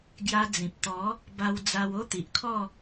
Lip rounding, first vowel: unrounded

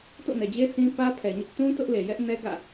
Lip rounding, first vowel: rounded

